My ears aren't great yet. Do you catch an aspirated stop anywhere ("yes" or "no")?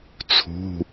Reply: yes